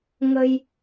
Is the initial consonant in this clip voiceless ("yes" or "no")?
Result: no